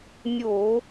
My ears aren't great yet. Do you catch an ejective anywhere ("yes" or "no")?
no